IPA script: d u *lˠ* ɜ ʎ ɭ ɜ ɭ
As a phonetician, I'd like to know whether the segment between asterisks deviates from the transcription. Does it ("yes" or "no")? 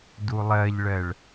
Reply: no